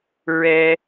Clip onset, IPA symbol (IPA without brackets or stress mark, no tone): ɹ